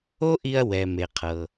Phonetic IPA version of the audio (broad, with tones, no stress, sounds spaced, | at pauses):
o˥ ʔ i˧ ɐ̯ w ɛ˩ m e˩ qʰ ɤ˩